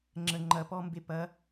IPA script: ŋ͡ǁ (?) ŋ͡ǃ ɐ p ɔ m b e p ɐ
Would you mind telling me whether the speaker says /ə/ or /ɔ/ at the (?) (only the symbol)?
ə